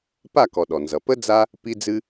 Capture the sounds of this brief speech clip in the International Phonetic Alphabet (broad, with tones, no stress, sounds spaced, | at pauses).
p a˦˨ k ɔ˨ ɗ ɔ˨ n z ʌ˨ p ə˦ d͡z a˦ | p i˦ d͡z ɨ˦